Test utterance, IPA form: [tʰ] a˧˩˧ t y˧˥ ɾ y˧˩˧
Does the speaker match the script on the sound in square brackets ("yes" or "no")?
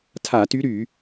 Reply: yes